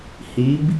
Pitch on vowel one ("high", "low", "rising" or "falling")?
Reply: rising